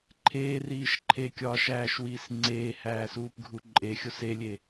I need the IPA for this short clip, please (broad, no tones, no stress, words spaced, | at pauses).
ǃʰeːriːʃ ǃʰekʲɒːʃæːʃwiːs ŋ͡ǀeːhæːsuːpɡʱu ǃʼexʲos elʲe